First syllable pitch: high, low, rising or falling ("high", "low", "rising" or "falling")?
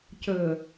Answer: low